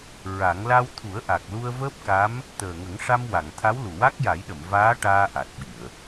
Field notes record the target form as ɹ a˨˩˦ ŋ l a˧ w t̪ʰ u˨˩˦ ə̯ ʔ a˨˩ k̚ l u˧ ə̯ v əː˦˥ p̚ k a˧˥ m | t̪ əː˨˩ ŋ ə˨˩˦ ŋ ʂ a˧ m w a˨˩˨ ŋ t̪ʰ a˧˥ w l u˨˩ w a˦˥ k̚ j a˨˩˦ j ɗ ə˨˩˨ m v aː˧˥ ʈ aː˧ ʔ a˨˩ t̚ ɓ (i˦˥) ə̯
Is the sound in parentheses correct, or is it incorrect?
incorrect